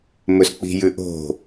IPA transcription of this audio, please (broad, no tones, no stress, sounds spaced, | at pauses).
m ɵ s k͡p i̤ j ʉ ʔ o̤